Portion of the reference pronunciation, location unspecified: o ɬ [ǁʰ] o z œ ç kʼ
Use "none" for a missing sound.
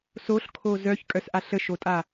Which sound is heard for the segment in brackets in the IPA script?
kʰ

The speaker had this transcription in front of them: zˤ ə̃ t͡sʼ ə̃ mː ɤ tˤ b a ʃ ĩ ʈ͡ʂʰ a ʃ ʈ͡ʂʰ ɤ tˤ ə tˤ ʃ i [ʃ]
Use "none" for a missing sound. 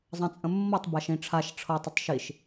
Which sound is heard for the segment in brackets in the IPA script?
ʃ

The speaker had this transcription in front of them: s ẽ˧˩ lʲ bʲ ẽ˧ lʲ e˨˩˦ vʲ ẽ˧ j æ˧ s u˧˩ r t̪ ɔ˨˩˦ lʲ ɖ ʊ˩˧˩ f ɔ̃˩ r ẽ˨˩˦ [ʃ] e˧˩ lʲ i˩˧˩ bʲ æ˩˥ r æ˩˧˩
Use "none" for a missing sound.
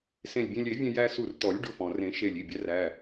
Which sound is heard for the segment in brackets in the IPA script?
ʃ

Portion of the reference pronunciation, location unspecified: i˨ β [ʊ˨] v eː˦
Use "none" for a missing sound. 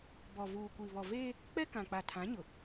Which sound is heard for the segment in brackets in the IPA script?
ɔ˨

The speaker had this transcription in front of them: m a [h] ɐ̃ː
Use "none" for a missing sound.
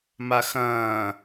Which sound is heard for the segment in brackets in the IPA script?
x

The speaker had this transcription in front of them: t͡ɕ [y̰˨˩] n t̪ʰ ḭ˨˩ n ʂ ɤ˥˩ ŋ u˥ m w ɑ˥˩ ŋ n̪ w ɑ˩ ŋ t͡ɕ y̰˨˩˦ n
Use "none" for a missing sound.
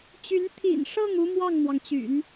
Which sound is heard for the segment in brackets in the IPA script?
y˧˥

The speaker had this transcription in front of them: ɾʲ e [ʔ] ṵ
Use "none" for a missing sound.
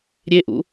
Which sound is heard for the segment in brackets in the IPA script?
ʔ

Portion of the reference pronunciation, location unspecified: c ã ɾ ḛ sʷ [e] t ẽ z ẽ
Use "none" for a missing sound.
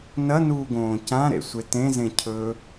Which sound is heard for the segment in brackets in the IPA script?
e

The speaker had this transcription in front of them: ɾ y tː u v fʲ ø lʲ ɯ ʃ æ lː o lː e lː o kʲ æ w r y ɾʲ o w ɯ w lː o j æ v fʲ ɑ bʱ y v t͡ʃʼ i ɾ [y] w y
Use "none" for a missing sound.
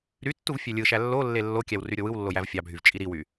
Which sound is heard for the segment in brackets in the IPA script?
i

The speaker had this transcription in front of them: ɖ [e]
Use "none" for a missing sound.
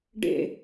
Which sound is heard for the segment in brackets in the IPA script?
ḛ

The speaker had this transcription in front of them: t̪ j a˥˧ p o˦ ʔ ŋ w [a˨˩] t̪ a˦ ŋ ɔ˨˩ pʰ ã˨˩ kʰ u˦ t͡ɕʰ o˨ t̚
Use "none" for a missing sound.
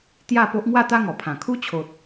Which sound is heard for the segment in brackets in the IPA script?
a˥˧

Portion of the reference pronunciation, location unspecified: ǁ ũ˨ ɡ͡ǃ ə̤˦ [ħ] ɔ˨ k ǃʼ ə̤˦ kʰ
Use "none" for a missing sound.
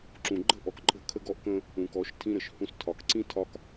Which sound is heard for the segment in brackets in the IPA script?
ʔ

